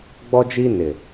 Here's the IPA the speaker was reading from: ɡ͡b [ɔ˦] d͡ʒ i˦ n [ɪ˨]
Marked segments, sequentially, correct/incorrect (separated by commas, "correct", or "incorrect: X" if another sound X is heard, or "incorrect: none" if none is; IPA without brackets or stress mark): correct, correct